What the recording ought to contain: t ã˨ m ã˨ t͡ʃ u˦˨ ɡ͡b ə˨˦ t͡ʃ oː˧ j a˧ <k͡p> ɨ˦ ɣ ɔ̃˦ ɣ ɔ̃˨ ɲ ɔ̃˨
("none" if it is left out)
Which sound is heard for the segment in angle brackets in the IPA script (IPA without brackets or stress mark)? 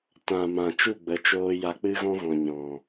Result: k͡p